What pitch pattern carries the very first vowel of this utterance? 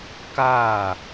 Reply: falling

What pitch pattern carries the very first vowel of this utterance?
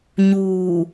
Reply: low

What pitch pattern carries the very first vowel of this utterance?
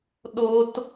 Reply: low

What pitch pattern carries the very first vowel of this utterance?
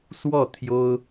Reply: falling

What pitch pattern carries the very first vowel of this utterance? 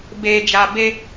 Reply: low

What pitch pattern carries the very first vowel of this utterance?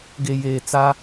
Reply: low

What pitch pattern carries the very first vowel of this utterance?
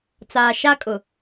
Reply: low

